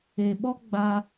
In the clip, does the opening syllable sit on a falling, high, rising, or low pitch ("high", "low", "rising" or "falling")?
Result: low